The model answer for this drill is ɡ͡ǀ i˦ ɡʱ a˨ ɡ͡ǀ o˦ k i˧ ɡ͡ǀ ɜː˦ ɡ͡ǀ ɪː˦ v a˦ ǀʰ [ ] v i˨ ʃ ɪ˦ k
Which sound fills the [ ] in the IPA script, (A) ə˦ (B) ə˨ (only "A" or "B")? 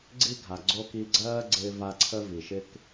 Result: A